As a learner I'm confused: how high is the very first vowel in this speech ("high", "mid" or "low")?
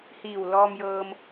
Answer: high